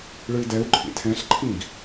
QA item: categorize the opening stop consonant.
plain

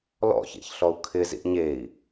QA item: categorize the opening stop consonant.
aspirated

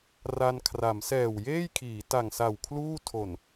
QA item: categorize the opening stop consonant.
aspirated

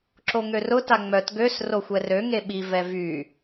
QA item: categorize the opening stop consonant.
click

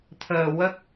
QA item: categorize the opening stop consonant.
aspirated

